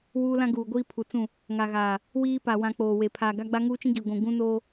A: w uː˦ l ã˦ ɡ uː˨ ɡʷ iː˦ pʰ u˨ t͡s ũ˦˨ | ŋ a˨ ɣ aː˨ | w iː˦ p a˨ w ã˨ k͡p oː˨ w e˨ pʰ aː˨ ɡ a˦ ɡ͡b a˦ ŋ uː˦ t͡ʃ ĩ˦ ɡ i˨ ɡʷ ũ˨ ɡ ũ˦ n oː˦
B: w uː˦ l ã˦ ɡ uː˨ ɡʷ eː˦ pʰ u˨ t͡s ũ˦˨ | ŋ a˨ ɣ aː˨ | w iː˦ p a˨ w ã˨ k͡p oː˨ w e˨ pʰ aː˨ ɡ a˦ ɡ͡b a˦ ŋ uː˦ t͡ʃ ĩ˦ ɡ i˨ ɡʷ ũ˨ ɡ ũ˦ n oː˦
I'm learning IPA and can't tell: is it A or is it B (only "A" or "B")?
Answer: A